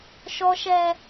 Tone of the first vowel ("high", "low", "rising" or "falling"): high